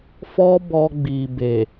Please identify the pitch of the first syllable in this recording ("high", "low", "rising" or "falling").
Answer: high